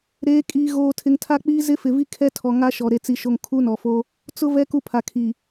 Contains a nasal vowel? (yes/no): no